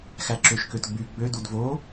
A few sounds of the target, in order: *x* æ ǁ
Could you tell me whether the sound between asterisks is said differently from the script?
no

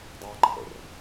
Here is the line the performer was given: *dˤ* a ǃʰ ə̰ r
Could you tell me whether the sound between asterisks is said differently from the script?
no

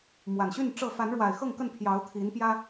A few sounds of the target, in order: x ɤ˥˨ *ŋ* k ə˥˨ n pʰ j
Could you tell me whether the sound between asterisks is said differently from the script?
no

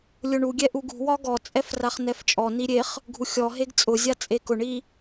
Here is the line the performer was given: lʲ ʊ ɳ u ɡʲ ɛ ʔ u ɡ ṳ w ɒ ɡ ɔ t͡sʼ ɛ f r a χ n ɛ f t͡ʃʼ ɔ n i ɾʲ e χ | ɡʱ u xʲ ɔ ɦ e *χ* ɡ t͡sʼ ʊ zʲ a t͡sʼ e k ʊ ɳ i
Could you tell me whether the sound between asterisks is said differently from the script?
yes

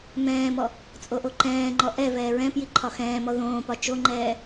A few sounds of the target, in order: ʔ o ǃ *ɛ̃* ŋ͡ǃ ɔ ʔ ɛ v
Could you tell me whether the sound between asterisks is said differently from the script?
yes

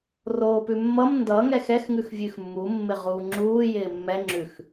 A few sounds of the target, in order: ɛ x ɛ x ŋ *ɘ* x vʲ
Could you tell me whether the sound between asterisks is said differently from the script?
yes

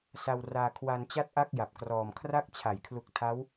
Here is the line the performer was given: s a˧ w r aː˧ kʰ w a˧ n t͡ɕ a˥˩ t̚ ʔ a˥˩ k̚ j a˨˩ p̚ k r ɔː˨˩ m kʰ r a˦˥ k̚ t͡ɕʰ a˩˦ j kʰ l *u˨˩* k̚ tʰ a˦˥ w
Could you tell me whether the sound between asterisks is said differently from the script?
no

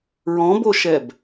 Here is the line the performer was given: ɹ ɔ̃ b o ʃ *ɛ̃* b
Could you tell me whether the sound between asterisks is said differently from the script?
yes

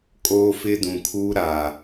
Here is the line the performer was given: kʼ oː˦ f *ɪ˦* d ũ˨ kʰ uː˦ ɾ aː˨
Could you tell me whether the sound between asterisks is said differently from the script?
no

